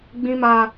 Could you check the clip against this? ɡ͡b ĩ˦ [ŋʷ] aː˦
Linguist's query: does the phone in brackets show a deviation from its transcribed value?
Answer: yes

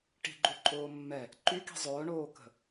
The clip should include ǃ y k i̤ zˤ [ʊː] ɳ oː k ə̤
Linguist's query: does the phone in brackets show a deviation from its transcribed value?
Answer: no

